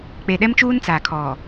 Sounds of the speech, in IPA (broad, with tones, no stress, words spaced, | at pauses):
k͡pe˨ɗɛ˦mt͡ʃuː˦n t͡sa˨kʰɔ˨